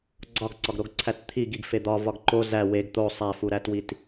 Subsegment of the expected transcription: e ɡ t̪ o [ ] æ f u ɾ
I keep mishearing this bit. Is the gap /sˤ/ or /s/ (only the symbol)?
sˤ